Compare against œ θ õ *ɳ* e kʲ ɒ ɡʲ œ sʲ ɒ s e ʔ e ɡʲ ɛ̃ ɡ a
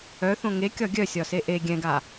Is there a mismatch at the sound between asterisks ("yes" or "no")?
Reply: yes